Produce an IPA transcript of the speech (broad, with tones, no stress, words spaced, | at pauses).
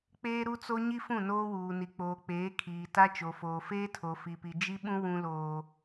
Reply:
k͡peː˦ɾu˦t͡so˦ ɲi˦fũ˦˨noː˦wuː˨ ni˨k͡poː˨k͡peː˨˦ kʰiː˨ta˦ t͡ʃo˨foː˨ feː˦tʰo˨fi˨pi˨ d͡ʒi˦ɓũ˦ wũ˦loː˦